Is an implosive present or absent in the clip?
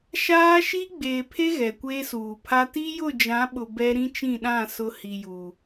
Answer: present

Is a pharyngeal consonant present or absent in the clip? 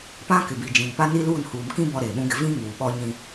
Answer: absent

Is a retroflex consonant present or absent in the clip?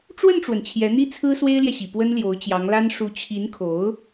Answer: present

